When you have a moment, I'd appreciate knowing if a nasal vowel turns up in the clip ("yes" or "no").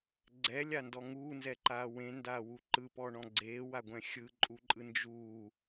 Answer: yes